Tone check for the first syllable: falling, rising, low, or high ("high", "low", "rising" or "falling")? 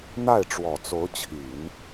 falling